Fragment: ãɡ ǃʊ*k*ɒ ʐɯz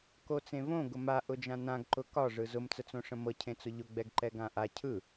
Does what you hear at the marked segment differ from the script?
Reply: no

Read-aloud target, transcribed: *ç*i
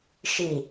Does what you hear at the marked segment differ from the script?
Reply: yes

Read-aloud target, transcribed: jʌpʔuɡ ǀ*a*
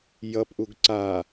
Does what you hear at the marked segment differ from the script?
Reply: no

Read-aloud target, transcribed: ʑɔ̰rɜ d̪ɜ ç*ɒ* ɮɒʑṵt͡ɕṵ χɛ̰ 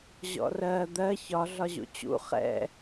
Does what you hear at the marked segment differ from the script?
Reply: no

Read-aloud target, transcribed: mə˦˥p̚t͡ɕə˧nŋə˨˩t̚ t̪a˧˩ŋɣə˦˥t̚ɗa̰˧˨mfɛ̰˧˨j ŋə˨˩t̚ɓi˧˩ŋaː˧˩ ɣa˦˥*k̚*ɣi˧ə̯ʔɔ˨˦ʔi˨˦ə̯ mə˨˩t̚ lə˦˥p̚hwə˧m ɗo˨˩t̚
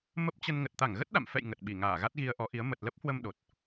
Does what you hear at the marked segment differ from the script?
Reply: yes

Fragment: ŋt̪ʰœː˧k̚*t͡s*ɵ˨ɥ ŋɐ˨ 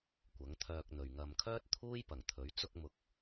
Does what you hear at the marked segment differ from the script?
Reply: yes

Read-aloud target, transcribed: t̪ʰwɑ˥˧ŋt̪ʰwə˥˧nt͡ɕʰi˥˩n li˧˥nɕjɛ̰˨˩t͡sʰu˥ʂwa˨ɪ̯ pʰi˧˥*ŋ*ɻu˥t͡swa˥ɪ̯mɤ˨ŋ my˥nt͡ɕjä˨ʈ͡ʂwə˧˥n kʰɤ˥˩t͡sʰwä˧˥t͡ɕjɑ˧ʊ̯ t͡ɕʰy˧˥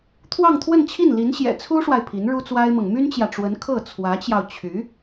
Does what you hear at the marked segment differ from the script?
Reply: yes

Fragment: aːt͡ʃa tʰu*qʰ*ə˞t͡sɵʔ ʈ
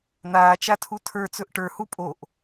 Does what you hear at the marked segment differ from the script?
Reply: yes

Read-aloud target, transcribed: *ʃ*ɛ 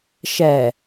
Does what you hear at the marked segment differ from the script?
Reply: no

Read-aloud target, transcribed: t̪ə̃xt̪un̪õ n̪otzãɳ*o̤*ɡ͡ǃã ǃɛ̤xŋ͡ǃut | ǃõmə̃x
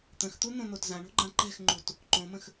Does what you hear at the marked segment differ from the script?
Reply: no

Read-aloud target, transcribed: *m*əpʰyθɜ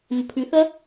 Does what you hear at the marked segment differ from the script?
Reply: no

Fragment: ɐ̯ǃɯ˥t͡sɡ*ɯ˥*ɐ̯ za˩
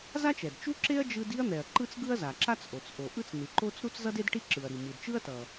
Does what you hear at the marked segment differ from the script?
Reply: no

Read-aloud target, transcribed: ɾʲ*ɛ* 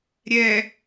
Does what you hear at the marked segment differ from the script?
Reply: no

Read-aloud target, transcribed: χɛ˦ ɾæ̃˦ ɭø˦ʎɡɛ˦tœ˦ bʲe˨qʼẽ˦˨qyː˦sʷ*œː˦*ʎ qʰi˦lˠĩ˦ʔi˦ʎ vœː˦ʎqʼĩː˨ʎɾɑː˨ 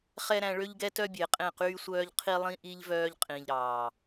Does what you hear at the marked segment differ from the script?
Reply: no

